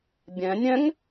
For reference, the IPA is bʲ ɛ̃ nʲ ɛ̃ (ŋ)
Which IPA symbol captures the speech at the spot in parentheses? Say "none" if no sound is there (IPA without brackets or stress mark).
ŋ